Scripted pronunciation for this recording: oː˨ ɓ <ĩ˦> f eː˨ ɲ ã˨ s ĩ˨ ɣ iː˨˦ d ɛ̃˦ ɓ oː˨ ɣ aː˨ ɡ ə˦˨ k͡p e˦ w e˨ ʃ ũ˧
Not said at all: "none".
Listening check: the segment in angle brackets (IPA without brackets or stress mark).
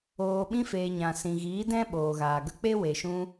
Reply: ĩ˧